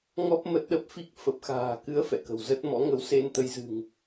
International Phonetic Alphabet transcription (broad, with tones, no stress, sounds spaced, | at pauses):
ŋ ɔ˦˥ p̚ m ə˦˥ t̚ ɗ ə˦˥ p̚ f i˦˥ k̚ f ə˨˩ p̚ x a̤ː˨˩ k ɨ˨˦ ə̯ f ɛ̰˧˨ k ə̤˨˩ w z ə˦˥ t̚ m ɔ̰˧˥ ŋ ə˨˦ w s e˧ n t̪ ə˨˦ j z ɨ̤˨˩ ŋ